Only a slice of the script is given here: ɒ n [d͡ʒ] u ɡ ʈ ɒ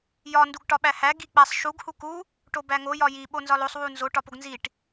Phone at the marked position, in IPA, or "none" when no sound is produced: d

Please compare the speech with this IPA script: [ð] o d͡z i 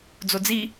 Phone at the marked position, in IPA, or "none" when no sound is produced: d͡z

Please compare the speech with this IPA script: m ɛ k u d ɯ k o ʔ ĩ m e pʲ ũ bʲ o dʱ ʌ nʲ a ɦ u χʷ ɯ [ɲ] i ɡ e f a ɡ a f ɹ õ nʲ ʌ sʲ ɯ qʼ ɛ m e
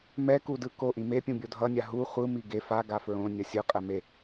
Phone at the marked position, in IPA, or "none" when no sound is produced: m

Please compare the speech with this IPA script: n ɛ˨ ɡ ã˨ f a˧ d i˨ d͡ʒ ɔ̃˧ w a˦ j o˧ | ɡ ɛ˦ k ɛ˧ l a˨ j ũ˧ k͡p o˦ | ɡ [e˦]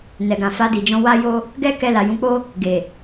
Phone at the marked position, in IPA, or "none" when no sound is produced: e˨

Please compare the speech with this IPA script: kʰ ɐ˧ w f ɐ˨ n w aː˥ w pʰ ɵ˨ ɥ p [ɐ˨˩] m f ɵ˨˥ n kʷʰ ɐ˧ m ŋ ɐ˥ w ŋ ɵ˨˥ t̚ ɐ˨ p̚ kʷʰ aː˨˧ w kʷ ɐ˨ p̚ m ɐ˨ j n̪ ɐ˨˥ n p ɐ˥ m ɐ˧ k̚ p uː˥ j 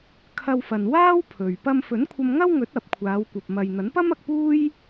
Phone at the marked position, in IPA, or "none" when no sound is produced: ɐ˧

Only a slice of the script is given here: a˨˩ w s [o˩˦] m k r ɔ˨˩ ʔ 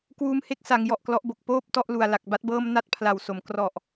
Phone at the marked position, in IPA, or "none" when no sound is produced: o˩˦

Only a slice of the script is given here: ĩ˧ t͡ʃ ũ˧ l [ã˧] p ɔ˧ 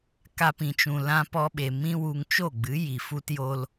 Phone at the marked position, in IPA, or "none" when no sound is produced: ã˧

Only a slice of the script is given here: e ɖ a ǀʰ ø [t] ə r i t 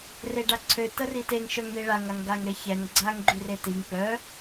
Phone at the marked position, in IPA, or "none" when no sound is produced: t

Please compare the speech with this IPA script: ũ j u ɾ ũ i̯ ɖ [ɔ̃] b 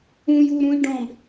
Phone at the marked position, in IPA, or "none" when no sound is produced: ɔ̃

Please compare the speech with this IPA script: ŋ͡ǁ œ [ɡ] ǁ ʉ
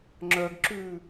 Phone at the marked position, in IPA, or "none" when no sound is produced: ɡ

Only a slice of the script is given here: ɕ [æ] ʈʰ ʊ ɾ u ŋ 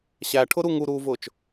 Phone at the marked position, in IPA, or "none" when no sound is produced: æ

